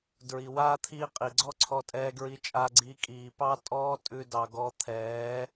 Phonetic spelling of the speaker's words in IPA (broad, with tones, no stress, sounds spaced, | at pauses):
d ɹ i˨ w aː˦ t̪ʰ iː˦ qʼ i˨ ɡ͡ǀ ɔ˦ ǀʰ ɔ˧ tʼ ɛː˧ ɡ ɹ i˧ t͡ʃʼ aː˧ ɡ͡ǀ iː˧ kʼ iː˨ p ɑ˦ tʼ ɔː˦ tʼ ʉ˧ d ɑ˨ ɡ ɔ˧ t̪ʰ ɛː˨˦